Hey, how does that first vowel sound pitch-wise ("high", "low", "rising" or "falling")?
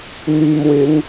low